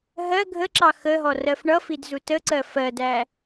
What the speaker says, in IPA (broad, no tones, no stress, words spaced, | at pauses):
ɦɜ ɡʱəǁɑ xəɦɔ rɜfɳʌfid zutəǀɜ fɜdæ